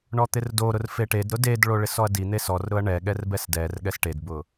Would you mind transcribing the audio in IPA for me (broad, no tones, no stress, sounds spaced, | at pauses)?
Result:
ɳ ɔ t̪ ɪ r d o ɾ ʊ r f e ʈ e d ɾ ʊ d e d ɭ o ɭ ɪ s ɔ ɐ̯ d i n̪ e s ɔ r ɾ ʊ ɐ̯ ɳ ɛ ɠ ɛ r b ɛ s d ɛ r ɠ ɛ s ʈ e d b ʊ